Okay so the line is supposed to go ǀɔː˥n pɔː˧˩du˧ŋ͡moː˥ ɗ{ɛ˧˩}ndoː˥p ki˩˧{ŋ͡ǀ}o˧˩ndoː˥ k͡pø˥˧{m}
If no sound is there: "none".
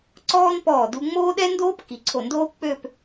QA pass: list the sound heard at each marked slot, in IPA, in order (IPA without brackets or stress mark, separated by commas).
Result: ɛ˥, ǀʰ, p